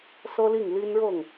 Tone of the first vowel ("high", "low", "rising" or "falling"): high